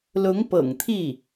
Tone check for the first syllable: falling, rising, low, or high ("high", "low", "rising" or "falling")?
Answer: rising